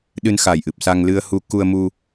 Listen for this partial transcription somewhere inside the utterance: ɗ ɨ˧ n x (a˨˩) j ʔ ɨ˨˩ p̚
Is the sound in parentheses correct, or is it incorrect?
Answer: incorrect